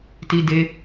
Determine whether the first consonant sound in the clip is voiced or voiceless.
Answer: voiceless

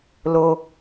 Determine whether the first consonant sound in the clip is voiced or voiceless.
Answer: voiced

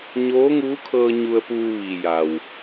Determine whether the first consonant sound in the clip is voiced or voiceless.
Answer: voiced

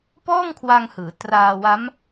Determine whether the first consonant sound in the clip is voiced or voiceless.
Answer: voiceless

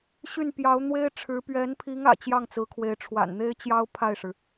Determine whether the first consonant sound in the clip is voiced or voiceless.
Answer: voiceless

